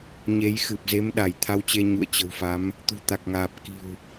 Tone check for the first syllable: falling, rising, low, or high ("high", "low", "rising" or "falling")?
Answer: rising